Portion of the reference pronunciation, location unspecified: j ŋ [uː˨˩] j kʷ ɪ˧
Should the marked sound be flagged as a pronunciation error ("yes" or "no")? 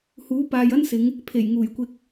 no